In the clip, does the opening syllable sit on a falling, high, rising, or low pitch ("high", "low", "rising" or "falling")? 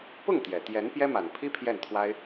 falling